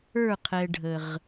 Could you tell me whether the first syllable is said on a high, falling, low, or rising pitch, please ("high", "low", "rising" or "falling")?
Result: falling